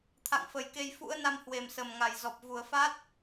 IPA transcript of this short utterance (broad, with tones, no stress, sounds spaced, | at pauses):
t̪ʰ a̰˧˨ ŋ f ə˧˩ j k e˧ j f ṵ˧˥ ə̯ n a˧ m h w e˨˩ m s ə˨˩ m ŋ a˨˩ j z ɔ˨˩ p̚ v u˨˩ ə̯ f a˦˥ t̚